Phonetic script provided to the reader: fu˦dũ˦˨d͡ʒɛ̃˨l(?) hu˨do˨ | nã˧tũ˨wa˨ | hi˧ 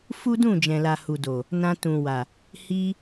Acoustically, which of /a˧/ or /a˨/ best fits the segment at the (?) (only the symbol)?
a˨